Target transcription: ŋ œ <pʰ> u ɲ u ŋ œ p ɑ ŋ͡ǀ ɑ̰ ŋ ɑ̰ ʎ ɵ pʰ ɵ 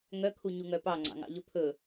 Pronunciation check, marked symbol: incorrect: kʰ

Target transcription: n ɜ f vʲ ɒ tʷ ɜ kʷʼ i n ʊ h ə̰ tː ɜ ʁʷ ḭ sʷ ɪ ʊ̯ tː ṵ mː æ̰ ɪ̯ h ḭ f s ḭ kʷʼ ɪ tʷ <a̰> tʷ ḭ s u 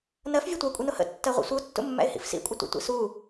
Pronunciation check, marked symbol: incorrect: ə̰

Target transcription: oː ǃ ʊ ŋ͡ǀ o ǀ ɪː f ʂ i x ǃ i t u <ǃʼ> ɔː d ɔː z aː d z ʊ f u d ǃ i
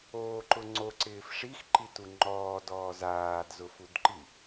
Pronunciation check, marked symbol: incorrect: ŋ͡ǃ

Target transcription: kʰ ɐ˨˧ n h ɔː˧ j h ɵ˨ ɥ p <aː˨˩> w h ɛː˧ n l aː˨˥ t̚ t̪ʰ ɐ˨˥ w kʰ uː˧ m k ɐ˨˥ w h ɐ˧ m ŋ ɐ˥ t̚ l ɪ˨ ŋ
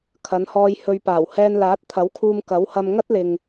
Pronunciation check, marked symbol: correct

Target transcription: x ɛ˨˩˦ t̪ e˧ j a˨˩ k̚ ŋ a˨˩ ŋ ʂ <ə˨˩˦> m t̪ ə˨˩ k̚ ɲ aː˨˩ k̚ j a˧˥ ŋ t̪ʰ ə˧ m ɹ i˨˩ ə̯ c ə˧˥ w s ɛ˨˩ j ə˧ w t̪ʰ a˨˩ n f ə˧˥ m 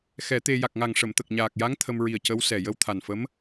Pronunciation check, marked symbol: incorrect: ə˨˩˨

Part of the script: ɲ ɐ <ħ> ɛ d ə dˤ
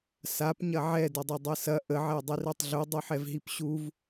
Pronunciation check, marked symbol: incorrect: ʕ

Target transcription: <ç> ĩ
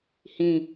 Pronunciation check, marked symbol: incorrect: h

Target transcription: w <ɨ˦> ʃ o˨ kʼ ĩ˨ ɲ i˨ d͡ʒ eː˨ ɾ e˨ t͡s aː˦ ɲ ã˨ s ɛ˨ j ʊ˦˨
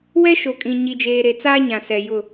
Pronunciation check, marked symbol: incorrect: ɛ˦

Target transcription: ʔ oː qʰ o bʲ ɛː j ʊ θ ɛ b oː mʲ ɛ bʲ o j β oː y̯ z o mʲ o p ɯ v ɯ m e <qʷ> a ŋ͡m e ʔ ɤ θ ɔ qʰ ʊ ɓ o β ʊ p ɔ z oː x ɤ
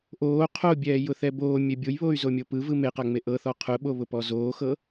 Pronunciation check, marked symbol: incorrect: q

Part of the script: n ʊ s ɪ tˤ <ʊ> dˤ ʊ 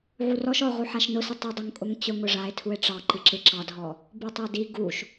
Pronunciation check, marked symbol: correct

